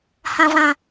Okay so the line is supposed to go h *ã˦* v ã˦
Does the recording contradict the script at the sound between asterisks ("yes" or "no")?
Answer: no